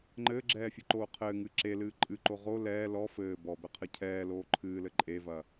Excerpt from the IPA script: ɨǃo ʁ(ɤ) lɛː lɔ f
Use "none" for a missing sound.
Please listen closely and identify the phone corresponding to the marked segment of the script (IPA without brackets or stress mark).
o